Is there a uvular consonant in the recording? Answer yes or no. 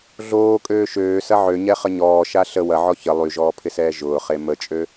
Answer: yes